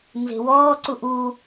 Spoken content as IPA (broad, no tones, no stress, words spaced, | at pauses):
nze̤wɔːǀuʔ u